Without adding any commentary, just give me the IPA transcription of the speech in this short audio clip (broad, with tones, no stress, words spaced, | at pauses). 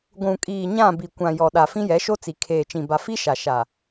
ɡʷũ˨kʼiː˨ɲã˦˨ bi˨kʷã˨ jɔ˨ɗa˨ fĩ˦jɛ˨˦ʃo˦t͡si˨ kʰeː˨t͡ʃĩ˨ ba˨fi˦ʃa˨ ʃa˨